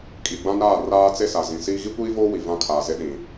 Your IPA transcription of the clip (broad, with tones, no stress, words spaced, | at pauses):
kʼi˨ ɡ͡bã˦naː˦˨raː˦ t͡se˦sa˨zĩ˨siː˦ ɣi˦kʷiː˦voː˦ wi˨vã˦kʰaː˨ze˦ ɗĩ˨